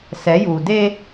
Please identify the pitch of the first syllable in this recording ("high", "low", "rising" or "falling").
rising